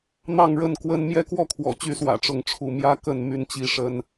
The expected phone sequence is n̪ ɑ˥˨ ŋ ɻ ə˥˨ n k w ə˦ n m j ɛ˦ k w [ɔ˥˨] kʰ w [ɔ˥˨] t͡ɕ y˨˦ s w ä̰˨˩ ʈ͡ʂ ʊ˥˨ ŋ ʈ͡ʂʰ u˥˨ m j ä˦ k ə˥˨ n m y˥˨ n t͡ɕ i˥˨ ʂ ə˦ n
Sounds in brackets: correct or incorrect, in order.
correct, incorrect

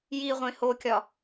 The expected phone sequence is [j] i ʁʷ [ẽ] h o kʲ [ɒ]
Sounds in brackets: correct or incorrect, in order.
correct, correct, correct

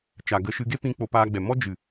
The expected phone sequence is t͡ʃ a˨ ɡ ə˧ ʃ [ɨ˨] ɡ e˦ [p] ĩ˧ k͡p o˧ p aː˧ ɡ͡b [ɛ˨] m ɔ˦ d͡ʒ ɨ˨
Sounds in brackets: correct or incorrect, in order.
incorrect, correct, correct

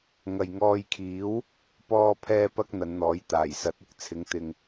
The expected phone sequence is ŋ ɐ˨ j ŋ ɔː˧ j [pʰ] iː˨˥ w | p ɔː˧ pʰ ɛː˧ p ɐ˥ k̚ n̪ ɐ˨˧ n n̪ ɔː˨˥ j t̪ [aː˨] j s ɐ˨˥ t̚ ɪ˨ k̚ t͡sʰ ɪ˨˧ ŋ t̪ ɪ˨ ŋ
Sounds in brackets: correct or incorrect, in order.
incorrect, incorrect

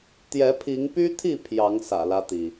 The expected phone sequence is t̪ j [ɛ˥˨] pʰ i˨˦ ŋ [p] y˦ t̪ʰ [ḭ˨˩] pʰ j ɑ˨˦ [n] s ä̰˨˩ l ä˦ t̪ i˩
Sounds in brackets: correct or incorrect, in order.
incorrect, correct, incorrect, incorrect

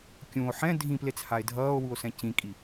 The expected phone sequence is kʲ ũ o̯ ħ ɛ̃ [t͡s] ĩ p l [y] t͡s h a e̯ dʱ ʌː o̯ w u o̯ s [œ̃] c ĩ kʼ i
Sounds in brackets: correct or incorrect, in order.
incorrect, incorrect, incorrect

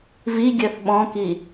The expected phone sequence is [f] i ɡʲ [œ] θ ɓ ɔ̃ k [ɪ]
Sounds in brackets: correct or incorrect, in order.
incorrect, correct, incorrect

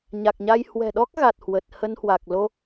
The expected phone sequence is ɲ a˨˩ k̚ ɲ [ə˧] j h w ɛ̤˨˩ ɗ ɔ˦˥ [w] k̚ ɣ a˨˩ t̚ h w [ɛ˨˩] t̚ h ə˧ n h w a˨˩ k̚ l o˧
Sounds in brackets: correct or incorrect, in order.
incorrect, incorrect, incorrect

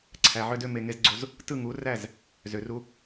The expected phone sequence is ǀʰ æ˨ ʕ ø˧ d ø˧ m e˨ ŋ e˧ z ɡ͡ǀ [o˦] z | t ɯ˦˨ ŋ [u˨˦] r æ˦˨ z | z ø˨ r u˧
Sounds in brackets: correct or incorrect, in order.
incorrect, correct

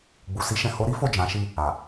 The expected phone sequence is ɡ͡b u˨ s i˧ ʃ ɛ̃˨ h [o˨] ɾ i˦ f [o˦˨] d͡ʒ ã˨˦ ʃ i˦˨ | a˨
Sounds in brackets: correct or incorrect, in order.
incorrect, correct

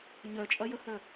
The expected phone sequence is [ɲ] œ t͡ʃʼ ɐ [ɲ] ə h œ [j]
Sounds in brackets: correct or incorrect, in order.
correct, incorrect, incorrect

